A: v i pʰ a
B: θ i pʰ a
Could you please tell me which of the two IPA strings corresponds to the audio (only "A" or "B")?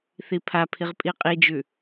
B